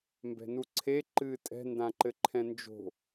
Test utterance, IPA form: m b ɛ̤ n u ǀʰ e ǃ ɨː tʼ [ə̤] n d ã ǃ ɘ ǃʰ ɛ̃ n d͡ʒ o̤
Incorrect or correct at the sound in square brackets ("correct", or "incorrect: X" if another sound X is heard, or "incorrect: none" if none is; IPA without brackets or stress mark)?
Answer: incorrect: ɛ̤